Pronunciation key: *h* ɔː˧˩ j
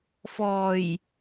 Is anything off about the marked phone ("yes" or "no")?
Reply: yes